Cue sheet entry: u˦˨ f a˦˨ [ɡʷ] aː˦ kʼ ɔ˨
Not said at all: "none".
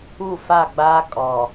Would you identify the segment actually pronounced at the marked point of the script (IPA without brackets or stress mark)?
ɡ͡b